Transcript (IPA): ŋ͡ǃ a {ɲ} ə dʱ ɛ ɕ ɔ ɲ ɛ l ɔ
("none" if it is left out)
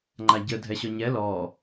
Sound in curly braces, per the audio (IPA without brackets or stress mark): ɟ